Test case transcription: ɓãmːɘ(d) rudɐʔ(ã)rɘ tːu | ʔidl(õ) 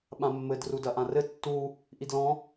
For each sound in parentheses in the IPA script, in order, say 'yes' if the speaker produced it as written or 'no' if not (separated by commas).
yes, yes, no